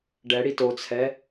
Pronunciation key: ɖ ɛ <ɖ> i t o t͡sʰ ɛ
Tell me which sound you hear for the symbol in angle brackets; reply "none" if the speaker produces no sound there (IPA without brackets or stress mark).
ɽ